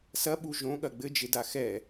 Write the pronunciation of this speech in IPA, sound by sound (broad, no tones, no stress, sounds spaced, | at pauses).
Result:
s ɐ ɓ u ʒ õ ɠ ɐ ɡ͡b ɘ d͡ʒ e d a x ɛ